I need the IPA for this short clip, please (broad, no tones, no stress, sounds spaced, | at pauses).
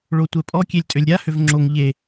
ɭ o tʷ ɛ pʼ ɔ kʲ e lʲ tʼ ø lʲ ɾʲ a h ø v ŋ͡ǁ o ŋ ʎ e